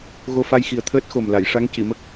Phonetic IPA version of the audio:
ɣ o˧ f a˧ j x i˨˩ ə̯ t̪ʰ əː˦˥ t̚ x o˨˩ m l a˨˩˨ j ʂ a˧˥ ŋ c i˨˩˨ m ə˦˥ k̚

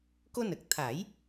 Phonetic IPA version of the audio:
k o˧ n ə˨˩ k̚ t̪ʰ a˨˩˦ j

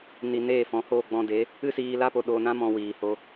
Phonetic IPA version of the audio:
n i˧ n eː˦˨ f ɔ̃˨˦ h oː˦˨ ɡ͡b ɔ̃˧ d e˨˦ | ɨ˦ s iː˧ l a˦ p o˧ ɗ oː˧ n ã˦ m ɔ̃˧ w iː˨ h o˧

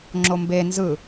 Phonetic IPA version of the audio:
ŋ͡ǁ o m b e n z ɯ

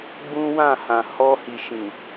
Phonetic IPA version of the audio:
ɡ͡b ũ˦ w ã˦˨ h ã˨ h ɔ˧ h i˨ ʃ ĩ˨

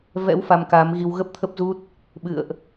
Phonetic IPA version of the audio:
v ɛ̰˧˥ w f a˧ m k aː˨˦ m ɣ i˧ w ɣ ə˦˥ p̚ t̪ʰ ə˦˥ p̚ z u˦˥ t̚ | ɓ ɨ̰˧˨ ə̯ ʔ

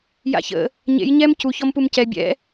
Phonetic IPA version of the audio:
j a̰ ç ə̰ | ɲ ḛ j ɲ ɛ m c u ç ɔ m p u m c ɛ bʲ ɛ̰

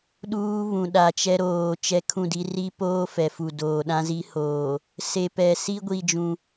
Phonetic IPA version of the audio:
ɗ uː˦ β ũ˨ ɗ a˨ t͡ʃ ɛ˦ ɾ oː˨ t͡ʃ ɛ˦ kʰ ũ˦˨ d i˦ r i˦ p oː˦ f ɛ˨ f u˨ d oː˨ ɗ ã˦ z i˦ h oː˨ | s e˨ p ɛ˨ s i˦ ɡʷ i˦ d͡ʒ ũ˦

